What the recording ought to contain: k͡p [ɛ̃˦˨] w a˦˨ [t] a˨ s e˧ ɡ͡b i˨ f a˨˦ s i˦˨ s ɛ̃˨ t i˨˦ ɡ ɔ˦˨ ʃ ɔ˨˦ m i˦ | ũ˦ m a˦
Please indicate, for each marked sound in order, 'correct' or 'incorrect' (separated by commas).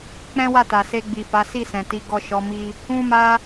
incorrect, correct